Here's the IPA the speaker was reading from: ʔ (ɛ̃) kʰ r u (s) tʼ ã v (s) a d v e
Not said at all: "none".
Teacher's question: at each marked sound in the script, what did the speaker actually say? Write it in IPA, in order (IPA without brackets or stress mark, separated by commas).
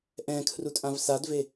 ɛ̃, none, s